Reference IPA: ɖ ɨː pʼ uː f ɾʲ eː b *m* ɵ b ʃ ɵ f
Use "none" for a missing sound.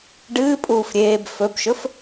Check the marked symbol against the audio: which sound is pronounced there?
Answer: f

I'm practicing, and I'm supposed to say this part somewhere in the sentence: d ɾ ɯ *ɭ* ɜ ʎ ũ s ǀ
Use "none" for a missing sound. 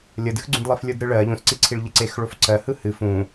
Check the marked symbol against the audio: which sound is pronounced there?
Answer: ɭ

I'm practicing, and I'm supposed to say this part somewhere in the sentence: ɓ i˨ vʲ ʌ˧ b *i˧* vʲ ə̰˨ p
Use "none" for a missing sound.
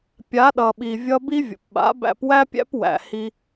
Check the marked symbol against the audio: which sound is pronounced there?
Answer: i˦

